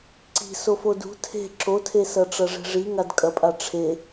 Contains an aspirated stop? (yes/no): yes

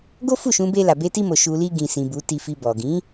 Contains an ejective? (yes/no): no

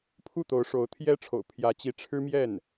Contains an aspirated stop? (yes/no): yes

